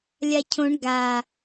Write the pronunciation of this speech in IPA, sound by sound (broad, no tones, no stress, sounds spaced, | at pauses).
lʲ a cʰ õ ɳ ɡ a